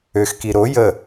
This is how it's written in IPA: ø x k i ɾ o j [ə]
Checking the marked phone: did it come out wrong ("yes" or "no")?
no